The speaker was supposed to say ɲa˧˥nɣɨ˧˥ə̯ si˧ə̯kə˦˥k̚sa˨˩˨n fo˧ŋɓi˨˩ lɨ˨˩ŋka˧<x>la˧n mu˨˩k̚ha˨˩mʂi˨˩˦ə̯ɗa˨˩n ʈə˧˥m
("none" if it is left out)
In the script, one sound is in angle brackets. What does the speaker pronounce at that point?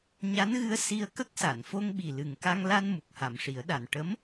ŋ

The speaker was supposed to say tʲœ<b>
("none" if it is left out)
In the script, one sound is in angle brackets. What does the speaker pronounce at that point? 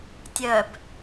b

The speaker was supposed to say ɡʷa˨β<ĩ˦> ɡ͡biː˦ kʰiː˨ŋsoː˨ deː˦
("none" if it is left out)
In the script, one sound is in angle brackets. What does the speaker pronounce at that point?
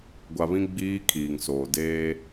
ĩ˦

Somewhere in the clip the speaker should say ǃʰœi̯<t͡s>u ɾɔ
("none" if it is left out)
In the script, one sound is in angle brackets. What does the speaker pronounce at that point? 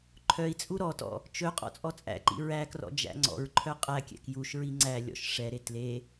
t͡sʼ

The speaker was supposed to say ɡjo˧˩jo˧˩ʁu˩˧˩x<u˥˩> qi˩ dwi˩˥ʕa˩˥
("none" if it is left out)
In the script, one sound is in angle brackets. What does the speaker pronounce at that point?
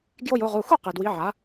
u˥˩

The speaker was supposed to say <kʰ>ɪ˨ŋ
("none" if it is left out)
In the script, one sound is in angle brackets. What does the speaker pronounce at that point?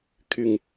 kʰ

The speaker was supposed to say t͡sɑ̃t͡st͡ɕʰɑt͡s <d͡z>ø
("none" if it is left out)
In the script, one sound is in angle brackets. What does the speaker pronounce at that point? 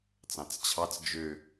d͡ʒ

